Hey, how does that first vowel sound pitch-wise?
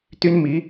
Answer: high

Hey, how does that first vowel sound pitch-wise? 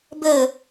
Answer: falling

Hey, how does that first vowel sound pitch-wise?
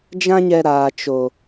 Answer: high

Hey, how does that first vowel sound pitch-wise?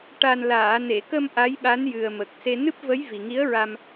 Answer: low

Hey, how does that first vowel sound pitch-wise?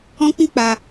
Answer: high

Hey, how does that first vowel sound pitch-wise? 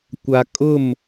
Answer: low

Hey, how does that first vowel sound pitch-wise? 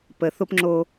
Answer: low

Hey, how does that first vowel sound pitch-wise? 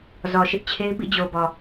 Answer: low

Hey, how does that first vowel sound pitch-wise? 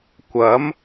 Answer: rising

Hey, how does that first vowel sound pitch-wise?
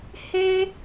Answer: high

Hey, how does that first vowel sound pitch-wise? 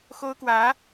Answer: high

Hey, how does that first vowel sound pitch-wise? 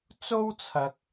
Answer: high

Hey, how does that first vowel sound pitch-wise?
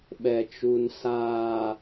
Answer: low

